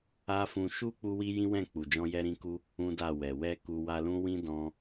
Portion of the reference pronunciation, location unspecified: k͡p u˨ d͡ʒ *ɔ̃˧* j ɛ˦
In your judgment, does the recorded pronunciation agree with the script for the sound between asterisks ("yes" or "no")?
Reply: yes